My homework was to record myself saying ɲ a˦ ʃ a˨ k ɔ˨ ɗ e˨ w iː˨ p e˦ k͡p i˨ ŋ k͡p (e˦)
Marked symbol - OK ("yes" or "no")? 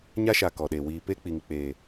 no